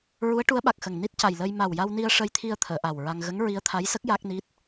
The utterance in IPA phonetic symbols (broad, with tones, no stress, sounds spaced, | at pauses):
ɹ u˧˥ ə̯ ʈ u˧˥ ə̯ ɓ a˨˩ k̚ x ə˨˩ ŋ n i˦˥ t̚ c a˨˩ j l əː˧ j m a˨˩ w j a˧ w n i˧ ə̯ ʂ ə˧ j t̪ʰ i˧ ə̯ t̪ʰ əː˨˩˨ ʔ a˨˩ w ɹ a˧ ŋ ɣ ə˧˥ ŋ ɹ i˧˥ ə̯ t̪ʰ a˧˥ j s ə˦˥ k̚ j a˦˥ k̚ n i˦˥ t̚